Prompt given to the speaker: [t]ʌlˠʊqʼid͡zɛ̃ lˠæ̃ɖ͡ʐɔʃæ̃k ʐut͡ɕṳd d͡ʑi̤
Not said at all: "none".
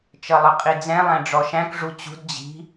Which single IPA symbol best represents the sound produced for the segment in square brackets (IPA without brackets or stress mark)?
t͡ʃ